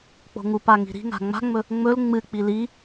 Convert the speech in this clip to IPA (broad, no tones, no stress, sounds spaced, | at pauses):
k͡p o̤ ŋ u p a ŋ i̤ ɾ i̤ ŋ a̤ ŋ͡m a̤ ŋ͡m ɵ | ŋ͡m ɵ l ŋ͡m ɨ k͡p i l i